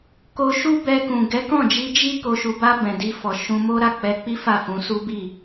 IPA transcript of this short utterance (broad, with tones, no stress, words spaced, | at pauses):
ko˧ʃu˦ bɛ˧kũ˨ ɡɛ˨˦kɔ̃˦˨d͡ʒi˧ d͡ʒi˦ ko˧ʃu˧ba˦ bɛ̃˧di˦fɔ˧ ʃũ˧mo˦ ɾa˦˨k͡pɛ˧k͡pi˦ fa˦˨fũ˧su˦ bi˦˨